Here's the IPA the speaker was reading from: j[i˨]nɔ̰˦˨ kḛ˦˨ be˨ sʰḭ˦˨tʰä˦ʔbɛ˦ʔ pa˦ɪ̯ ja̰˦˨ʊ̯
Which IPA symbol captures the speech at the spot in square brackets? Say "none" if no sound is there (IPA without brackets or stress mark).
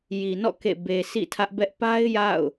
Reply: i˨